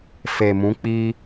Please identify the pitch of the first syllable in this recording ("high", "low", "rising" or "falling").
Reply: low